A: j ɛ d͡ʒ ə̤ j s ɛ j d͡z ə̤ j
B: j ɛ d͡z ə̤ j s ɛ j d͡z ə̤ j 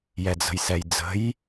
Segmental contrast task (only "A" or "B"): B